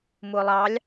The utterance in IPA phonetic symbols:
m ʊː lˠ ɑ lʲ

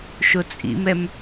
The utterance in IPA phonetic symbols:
ʃ o t͡sʼ ḭ m ɛ m

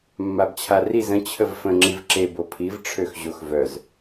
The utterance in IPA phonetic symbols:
mː a b t͡ɕʰ a r i z ə̃ t͡ɕʰ ə v f ə̃ ŋ͡ǁ i v ǁ e b o pʰ i v ʈ͡ʂʰ ø x ʑ o x v œ z

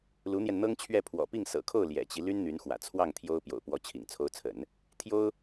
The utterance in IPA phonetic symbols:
l u˧˥ n̪ j ɛ˧ n n̪ ɤ˥ ŋ t͡ɕʰ ɥ ɛ˥˩ pʰ w ɔ̰˨˩ p i˥˩ ŋ s ɤ̰˨˩ kʰ o˥˩ ʊ̯ l j ɛ̰˨˩ t͡ɕ i˦ l y˥ n n̪ y˧˥ n x w ä̰˨˩ t͡sʰ w ɑ˥˩ ŋ t̪ʰ j o˥ ʊ̯ p j o̰˨˩ ʊ̯ p w ɔ˧˥ t͡ɕʰ ḭ˨˩ ŋ t͡sʰ o˧˥ ʊ̯ t͡sʰ ə̰˨˩˦ n | t̪ʰ j o˥ ʊ̯

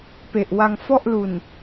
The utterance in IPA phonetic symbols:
p e˨˩ ʔ w a˧ ŋ f ɔ˥˩ ʔ l u˨˩ n

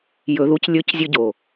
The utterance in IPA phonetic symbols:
j ɵ˧ ð u˦ c lʲ ɵ˦ c zʲ ɵ˧ ɟ o˨

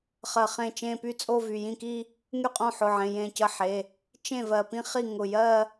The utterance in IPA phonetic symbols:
χ ɜ˧˩ χ ẽ˥˩ t͡ʃ ẽ˥˧ p y˥˧ t͡sʼ o˥˧ v y˩˧˩ j ĩ˥˩ k i˥˧ | ŋ y˥˩ qʼ õ˥˩ ħ ʊ˩˧˩ ʕ ẽ˩˧˩ j ẽ˥˩ c ə˥˩ ħ e˩˧˩ | t͡ʃ ẽ˥˩ v ɜ˧˩ p ĩ˥˧ χ i˥˩ ŋ ʊ˧˩ j ɜ˥˧

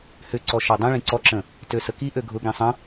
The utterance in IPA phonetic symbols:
h ʏ ǀ ɔ ʃ ɔ dˤ ĩ ɭ ĩ ǀ ɔ ǁ ə̃ | t ø s ə k i ʔ ø ɡʱ ʊ ɡ ĩ sˤ ə̃

